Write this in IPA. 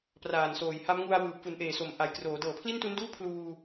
p r aː˨˩ n s oː˨˩ j h a˦˥ m ŋ u˧ a̯ w ɯː˨˩ p̚ f u˩˦ n ʔ eː˨˩ s o˩˦ m ʔ a˨˩ j k r oː˩˦ d ɤː˨˩ pʰ l i˥˩ n t u˦˥ n d uː˥˩ pʰ l uː˧

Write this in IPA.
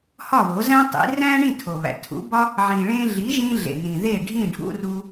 h ɒ˥˩ β o˩˥ z æ̃˥ tˤ ḭ˩˥ r æ̃˥ ɳ ĩ˥˩ tʰ o˩ β æ̰˩ tʰ ṵ˩˥ b ɒ˥ | ʕ ĩ˩ ɭ ẽ˧ ɮ i˩˥ ʒ ĩ˧ ɮ ḛ˩ n ĩ˩ ð e˥˩ ɖʱ ĩ˥˩ ɖʱ ṵ˧ r u˧

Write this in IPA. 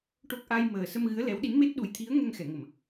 ʈ o˦˥ k̚ ʔ a˧ j m əː˨˩ s ə˧ m ɣ ɨ˧˥ ə̯ l ɛ˧˥ w ɗ i˧˥ n m e˦˥ t̚ ɗ u˨˩ j t̪ʰ i˧˥ ə̯ ŋ ɛ˧ ŋ x ɛ˨˩˨ ŋ ə˨˩˨ m

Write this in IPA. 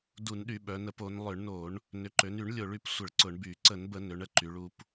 d u˧˩˧ n ɗ y˧˩˧ ɓ œ˩˧ n ə˧˩˧ p o˩˧ n lˠ ʏ˧˩˧ ɳ n o˧˩˧ ɳ | n ʏ˩˧ ǃ ø˩˧ n y˧˩˧ ɳ lʲ o˧˩˧ ɭ y˩˧ p sʷ ə˧˩˧ ɭ ǀ ʊ˧˩˧ ɳ b y˧˩˧ ǀ ə˧˩˧ n b ə˧˩˧ n ø˩˧ ɳ ə˩˧ ǃ y˩˧ ɭ u˩˧ p

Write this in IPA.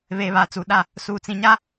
β eː˨ β aː˨ t͡s uː˨ ɗ a˦˨ | s uː˨ t͡s ĩ˨ ɲ a˦

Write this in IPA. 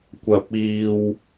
kʷ ɐ˨ p̚ iː˨ w

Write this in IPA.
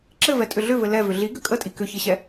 ǁ ɘ v ɛ tʼ ʏ ɮ ʏ v ɘ l ɛ v ʏ ɮ i ɡ ʏ kʼ ə tʼ i k ʏ ç ɘ ɕ ɛ

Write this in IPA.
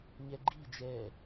ɲ ɛ ɡ͡ǃ i d͡ʒ ɛ

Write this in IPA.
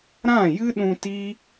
ɾ ã˦˨ j ɨ˦ ɗ ũ˧ t i˦

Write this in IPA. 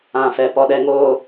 ã˨ f ɛ˨ p ɔ˨ ɗ ɛ˨ ŋ oː˨

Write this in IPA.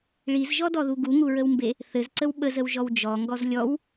ɭ i z ʒ ɔ d ɔ ð u ɡ u ŋ u ɹ ə w m b e | θ ɘ z ǀ ə w ɓ ə z ə w ʒ ɔ w d͡ʒ ɔ ŋ ɡ ɔ z lʲ ɔ w

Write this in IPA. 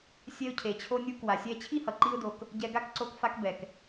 sʲ ɛ˧ ʊ̯ cʰ e˨ t͡ɕʰ o˧ nʲ u˧ k w a˨ sʲ ɛ˧ t͡ɕʰ i˦ h ʌ˨ ǃ i˦ ʊ̯ d o˧ k | ɟ ɛ˧ ɡ a˦ k ǀ o˧ k f a˧ k b ɛ˨ k

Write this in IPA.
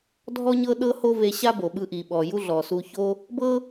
dʱ ɔ˥ ɲ ɤ˥ ɗ ɤ˥ h o˥ v e˧ ɕ a˥ b o˩ ɓ ɯ˧ ʔ i˩ ɓ ɔ˩ j u˥ ɮ ɔ˩ s u˧ ç o˥ | b ɤ˥

